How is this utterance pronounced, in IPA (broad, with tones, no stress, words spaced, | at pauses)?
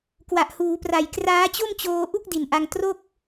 kwa˨˩ʔhuː˩˦pra˨˩j kraː˦˥t͡ɕo˥˩mt͡ɕoː˧ ʔu˥˩k̚ di˨˩nʔa˧ŋ tro˥˩k̚